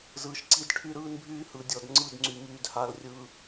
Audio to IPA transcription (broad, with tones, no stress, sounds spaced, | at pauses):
z ɯː˨ ʃ ǀ i˦ d ʈʰ y˦ ɾ ɯː˦ n bʱ yː˦ h ɯ˨ dʲ ɔ˨ d ŋ͡ǀ ɯ˦˨ d ŋ͡ǀ y˨ m yː˨ d h a˨ l rʲ ɯː˨